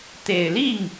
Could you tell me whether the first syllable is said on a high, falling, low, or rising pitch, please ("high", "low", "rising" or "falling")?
low